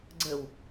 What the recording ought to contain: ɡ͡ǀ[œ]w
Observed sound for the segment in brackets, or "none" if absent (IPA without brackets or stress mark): ə